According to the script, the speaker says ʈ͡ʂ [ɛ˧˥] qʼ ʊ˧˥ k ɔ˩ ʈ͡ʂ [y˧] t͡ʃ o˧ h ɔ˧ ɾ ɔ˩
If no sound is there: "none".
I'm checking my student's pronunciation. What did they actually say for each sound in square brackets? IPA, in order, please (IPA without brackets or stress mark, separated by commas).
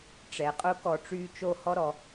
ɛ˩, y˧